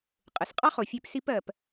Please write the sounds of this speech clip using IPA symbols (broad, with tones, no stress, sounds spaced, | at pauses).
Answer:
qʼ ɘ˩ s qʼ ɑ˥ χ o˩ fʲ ø˧ p s i˧ p ɜ˩ p